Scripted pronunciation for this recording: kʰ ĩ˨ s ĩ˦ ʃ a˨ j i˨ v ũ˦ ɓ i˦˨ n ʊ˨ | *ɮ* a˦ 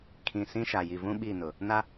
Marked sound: incorrect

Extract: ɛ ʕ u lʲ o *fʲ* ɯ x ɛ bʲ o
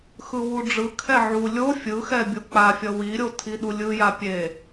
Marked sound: correct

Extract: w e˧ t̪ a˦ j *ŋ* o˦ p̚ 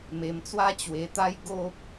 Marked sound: incorrect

